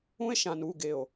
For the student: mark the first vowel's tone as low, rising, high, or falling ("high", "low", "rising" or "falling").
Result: high